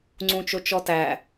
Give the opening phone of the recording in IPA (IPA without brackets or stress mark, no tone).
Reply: ŋ͡ǀ